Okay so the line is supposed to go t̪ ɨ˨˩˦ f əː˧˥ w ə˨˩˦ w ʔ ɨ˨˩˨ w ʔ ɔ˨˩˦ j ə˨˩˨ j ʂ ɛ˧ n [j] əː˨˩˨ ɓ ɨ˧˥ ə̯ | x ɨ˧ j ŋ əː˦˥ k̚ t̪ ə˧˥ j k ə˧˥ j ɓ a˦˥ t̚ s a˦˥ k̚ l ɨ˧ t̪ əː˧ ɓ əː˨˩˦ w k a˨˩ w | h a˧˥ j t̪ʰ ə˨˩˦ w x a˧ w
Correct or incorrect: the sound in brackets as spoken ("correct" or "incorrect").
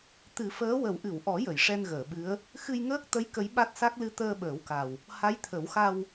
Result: incorrect